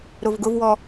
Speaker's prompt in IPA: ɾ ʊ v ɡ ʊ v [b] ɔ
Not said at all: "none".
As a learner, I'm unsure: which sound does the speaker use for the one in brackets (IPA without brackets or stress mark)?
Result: w